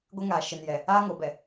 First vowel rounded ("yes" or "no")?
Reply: no